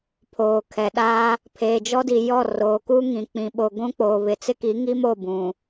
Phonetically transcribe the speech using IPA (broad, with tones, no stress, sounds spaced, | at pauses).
pʰ oː˨ kʰ ɛ˨ ɗ aː˦ | pʰ eː˨ d͡ʒ ɔ˦ d i˨ j ɔ˦˨ r oː˨ k u˦ ŋ ĩ˨ k͡p ĩ˨ ɓ o˨ ɡʷ ũ˦ k͡p oː˨ β ɪ˨ t͡s ɪ˦ k i˨˦ ŋ i˦ m o˦˨ b ũ˨